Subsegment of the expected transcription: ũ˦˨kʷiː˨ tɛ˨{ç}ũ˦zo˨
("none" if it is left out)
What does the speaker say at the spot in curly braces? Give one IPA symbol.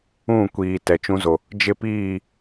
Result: t͡ʃ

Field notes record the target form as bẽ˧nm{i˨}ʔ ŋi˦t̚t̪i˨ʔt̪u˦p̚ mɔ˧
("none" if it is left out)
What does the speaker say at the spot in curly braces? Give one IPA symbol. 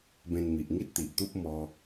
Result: i˨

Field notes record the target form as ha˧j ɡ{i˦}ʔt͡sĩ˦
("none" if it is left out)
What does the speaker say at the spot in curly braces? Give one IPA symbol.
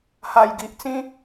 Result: i˨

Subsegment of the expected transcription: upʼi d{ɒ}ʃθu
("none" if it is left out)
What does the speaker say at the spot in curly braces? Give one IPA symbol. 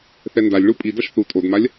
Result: ʌ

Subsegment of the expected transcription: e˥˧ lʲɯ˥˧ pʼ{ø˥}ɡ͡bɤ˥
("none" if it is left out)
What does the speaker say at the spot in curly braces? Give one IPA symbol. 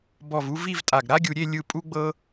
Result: u˥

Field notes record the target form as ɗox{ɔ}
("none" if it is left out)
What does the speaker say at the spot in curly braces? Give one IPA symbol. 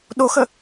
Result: ə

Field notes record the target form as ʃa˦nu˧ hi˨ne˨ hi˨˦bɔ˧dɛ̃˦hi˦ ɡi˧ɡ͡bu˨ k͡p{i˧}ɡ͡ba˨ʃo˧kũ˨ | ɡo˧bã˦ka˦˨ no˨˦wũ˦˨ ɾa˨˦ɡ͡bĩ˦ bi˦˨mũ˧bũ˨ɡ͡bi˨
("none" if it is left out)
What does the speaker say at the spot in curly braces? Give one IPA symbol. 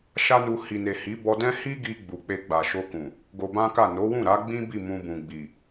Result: e˧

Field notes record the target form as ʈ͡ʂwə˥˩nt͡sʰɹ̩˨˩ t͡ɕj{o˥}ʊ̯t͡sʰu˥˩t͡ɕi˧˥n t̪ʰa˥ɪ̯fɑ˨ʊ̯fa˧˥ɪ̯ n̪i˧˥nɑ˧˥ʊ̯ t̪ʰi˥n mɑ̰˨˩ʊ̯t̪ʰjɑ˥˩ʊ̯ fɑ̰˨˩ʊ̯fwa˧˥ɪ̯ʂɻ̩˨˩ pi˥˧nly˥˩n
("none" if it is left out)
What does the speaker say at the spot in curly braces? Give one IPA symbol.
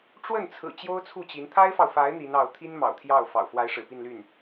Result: o˥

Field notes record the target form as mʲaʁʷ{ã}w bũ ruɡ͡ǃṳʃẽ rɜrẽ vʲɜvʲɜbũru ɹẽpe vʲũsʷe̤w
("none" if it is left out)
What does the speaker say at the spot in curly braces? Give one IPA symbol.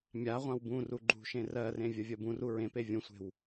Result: ã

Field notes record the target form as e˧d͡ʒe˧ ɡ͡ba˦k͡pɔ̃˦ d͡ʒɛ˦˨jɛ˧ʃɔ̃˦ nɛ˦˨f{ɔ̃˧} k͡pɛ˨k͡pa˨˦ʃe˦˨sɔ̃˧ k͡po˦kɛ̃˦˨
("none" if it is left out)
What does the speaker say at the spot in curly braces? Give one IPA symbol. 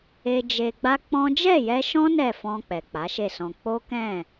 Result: ɔ̃˧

